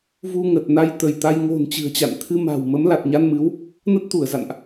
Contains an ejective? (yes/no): no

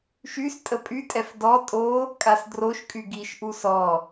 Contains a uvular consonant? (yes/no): no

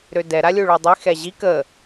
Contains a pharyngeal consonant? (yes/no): no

